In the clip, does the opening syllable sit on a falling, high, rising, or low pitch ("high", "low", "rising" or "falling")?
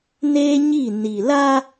high